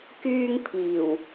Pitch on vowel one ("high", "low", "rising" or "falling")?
high